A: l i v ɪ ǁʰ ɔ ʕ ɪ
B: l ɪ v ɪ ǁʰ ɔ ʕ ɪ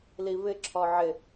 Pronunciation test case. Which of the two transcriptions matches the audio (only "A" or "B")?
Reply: A